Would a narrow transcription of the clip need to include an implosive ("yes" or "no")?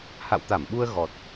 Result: yes